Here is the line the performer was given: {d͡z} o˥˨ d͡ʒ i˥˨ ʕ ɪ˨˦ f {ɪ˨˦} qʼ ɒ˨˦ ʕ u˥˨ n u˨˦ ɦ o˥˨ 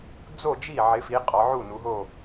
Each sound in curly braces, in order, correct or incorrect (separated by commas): correct, incorrect